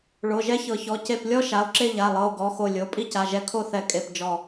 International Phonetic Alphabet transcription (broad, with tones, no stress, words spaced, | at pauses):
ɭo˩˧˩ʒɛ˦˥çɤ˨˩˦çɔ˩˧˩ ce˧˩plʲɔ˦˥ ʃa˩˧˩o̯ǁe˥˧ʎa˩˧˩lˠɤ˩˧˩o̯ ɡɔ˩˧˩xo˧˩ lʲo˩˧˩ pʼi˦˥ca˩˧˩ʒɛ˧˩ kʰo˥˧θɛ˧˩ kʼe˧˩pd͡ʒɔ˧˩